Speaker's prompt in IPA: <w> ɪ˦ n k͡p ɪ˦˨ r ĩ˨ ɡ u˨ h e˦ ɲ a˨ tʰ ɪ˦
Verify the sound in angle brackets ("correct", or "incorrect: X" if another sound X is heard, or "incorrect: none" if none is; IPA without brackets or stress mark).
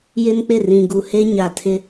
incorrect: j